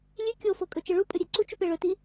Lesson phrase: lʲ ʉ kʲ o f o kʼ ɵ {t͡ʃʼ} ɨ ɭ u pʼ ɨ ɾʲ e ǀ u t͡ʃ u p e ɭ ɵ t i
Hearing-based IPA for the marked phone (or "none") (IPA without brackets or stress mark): t͡ʃ